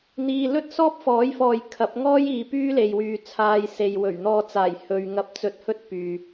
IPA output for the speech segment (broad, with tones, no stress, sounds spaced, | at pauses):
n̪ iː˧ l ɵ˥ t̚ s ɔː˥ p̚ f ɔː˨˥ j f ɔː˨ j kʰ ɐ˨˥ p̚ ŋ ɔː˥ j iː˨˧ p yː˥ l e˨ j w yː˨˧ t͡sʰ aː˧ j s e˨ j w ɵ˨˩ ɥ n̪ ɔː˧ t͡s aː˨˩ j h ɵ˨ ɥ ŋ ɐ˧ p̚ t͡s ɵ˧ t̚ h ɵ˥ t̚ p yː˨